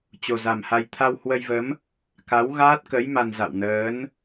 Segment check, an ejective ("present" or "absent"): absent